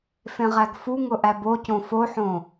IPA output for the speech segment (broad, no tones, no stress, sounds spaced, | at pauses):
f ẽ ʁ æ ɡ f u ŋ ʊ ʔ æ b o c õ f o ħ õ